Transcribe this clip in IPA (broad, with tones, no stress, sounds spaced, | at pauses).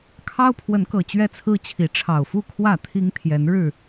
kʰ ɑ˦ ʊ̯ pʰ w ə˨˦ n k ɤ˨˩ t͡ɕ ɥ ɛ˦ t͡sʰ ɹ̩˦ t͡ɕʰ i˨˦ ʈ͡ʂʰ ɑ˨˩ ʊ̯ f u˥˨ kʰ w ä˥˨ t̪ʰ i˦ ŋ t̪ʰ j ɛ˨˦ n ɻ ɻ̩˥˨